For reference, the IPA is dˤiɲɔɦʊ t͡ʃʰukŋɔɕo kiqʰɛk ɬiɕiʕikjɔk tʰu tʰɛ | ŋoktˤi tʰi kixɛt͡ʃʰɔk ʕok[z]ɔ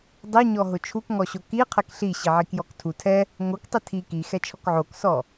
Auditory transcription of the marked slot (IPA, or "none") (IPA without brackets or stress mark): s